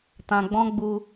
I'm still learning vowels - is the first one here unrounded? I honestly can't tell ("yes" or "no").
yes